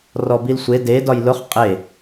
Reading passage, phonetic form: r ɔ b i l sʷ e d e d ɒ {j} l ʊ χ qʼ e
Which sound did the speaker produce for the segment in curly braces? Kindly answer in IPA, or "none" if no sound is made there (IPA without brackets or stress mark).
j